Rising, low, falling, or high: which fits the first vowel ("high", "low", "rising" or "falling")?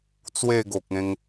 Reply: falling